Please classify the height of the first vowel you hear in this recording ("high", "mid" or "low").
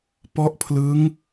mid